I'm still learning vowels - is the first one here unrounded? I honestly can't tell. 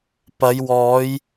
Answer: yes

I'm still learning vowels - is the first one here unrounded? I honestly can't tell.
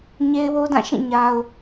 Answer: yes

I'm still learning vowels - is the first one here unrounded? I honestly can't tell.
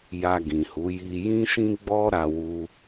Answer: yes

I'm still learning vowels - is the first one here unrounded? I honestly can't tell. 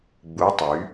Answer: no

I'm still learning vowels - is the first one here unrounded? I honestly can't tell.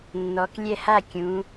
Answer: no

